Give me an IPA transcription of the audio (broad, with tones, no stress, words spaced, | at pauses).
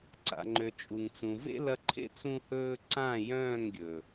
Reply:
ǀa̰˨ŋ͡ǃø˨ t͡ʃʼu˨ŋt͡sũ˨ vḛ˦lɐ˧ǃʰḛ˦ t͡sũ˦hɵː˦ ǀã˦˨jœ̃ː˦˨ŋɡʲɵ˨